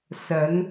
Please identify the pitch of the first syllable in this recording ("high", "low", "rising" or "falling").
rising